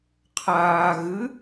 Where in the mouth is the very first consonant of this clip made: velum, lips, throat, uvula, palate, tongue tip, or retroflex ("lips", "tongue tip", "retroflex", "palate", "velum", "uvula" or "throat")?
uvula